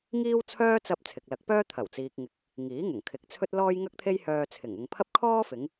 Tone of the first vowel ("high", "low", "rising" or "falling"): high